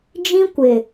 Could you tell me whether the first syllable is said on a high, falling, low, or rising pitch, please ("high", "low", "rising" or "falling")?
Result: high